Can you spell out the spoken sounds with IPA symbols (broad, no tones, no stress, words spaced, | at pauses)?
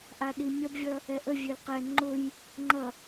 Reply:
ʔaɗimʲʌbvʲʌ | ɛʔəvʲøl qɛ ŋ͡ǃʊj | ŋ͡ǃʌ